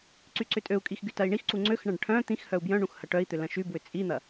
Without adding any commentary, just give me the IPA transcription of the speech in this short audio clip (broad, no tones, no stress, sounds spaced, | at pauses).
ǀ y ǀ ʏ tʼ ø u̯ kʼ i x ɡ y t ɐ i̯ ɳ i x ǀ u ŋ͡ǀ ø x ɳ ɐ̃ ɖ ʈʰ œ̃ t̪ ĩ x h œ u̯ b j œ̃ ɳ ũ x h ɐ ʈ œ i̯ t̪ ʏ l ɐ̃ ʃ y b w ʏ t͡sʼ i n̪ ɐ